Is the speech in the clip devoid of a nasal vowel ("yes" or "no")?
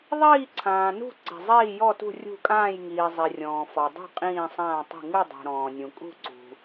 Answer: no